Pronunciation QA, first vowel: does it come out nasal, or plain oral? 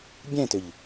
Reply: nasal